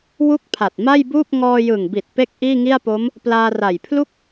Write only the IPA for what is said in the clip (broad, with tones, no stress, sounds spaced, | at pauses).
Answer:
w u˥˩ k̚ pʰ a˨˩ t̚ m a˥˩ j b uː˥˩ p̚ ŋ ɔː˧ j ɯ˨˩ ŋ b i˨˩ t̚ p e˥˩ k̚ ʔ iː˥˩ ŋ i˥˩ a̯ p o˦˥ m | p l aː˧ r a˨˩ j pʰ l u˥˩ k̚